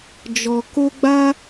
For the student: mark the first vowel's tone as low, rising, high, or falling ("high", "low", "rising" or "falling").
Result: high